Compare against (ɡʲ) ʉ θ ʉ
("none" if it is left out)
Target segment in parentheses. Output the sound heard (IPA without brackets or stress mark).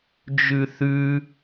d͡ʒ